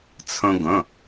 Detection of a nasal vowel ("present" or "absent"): present